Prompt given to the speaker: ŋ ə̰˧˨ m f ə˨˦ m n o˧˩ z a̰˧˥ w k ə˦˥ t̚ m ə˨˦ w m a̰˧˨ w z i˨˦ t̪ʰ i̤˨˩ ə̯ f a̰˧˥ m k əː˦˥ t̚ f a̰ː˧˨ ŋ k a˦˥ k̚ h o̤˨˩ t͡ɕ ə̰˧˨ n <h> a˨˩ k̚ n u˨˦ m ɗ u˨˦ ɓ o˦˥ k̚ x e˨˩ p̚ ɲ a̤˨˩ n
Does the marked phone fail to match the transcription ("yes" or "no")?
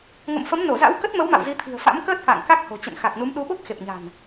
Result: yes